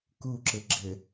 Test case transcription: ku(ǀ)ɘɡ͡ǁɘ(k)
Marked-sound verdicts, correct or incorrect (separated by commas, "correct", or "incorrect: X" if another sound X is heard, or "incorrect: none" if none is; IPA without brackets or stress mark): incorrect: ǁ, incorrect: none